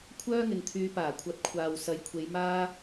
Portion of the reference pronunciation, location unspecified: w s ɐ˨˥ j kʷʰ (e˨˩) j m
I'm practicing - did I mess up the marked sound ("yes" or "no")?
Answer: yes